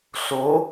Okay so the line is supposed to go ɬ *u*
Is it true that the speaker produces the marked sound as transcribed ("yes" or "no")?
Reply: no